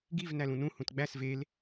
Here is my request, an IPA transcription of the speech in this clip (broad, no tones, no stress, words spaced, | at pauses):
ɡiv nælũnũ hũtɡ͡bæs vel